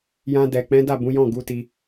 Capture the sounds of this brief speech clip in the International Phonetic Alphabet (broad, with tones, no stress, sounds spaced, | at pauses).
j ã˧ d ɛ˨ k͡p ɛ̃˨˦ d a˦˨ b ũ˨˦ j ɔ̃˦˨ ɡ u˨˦ t i˧